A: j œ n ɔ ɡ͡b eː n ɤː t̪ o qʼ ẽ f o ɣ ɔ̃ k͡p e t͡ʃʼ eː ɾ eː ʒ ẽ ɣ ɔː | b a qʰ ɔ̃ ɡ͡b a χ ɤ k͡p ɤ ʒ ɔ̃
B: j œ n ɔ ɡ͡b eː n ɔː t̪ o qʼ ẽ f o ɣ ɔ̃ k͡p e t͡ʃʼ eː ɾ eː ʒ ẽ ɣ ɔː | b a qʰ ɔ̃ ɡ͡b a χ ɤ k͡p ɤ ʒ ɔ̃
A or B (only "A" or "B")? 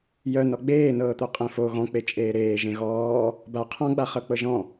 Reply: A